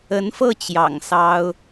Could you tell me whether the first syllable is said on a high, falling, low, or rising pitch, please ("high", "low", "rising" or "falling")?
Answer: rising